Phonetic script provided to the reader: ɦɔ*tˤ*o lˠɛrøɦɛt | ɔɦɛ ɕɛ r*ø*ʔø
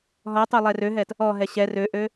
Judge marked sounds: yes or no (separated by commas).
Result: yes, yes